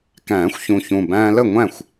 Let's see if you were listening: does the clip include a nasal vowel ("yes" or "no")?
yes